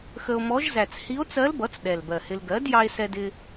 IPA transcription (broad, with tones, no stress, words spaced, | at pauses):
xə˧o̯mɔ˧˥ʒ zæ˨˩t͡shi˧˥o̯t͡sɜ˧˥lbʌ˩˥t͡s ɗɛ˨˩lbɜ˨˩hɪ˧l ɡɜ˩˥d jɑ˧e̯sɛ˧dɪ˧